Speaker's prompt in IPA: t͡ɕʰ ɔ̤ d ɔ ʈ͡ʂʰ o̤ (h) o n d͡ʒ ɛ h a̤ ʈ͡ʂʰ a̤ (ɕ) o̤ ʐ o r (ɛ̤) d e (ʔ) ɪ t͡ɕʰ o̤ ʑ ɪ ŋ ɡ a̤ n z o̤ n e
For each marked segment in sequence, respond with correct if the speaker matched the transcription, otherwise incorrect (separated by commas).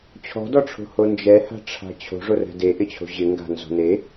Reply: correct, incorrect, correct, correct